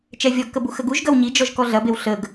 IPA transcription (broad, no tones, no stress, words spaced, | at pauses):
t͡ʃɛvʲɔɡkəbu xəɡuʒ ɡɐwɲid͡ʒɔʒ kɔɮɐbew ɬəɡ